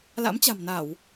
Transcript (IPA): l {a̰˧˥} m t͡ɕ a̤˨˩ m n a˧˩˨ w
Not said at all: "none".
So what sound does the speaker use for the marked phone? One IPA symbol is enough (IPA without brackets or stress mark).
a̰˧˥